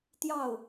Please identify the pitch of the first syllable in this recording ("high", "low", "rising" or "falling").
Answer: falling